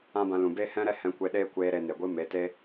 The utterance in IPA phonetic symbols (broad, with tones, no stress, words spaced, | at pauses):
ã˦bã˧lũ˨ be˦hɛ̃˦ɾɛ˦ hɛ̃˧kʷe˧ɗeː˦ kʷeː˧ ɾe˧ne˨ɡʷɨ˦ me˨˦te˦